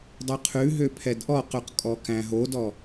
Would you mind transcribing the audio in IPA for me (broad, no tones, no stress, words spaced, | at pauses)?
dˤʉqʰʉɦø pʰɛdʔɔqʉq kʼɔkæ̃ɦodɔ